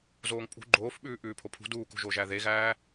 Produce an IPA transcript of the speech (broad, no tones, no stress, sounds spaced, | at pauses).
z oː ŋ pʼ ṳ ɡ͡ǃ oː f ɓ ʉː ʔ ʉː pʰ o pʰ ṳ d uː k o̤ ʒ o ʒ æ ð e ɣ æː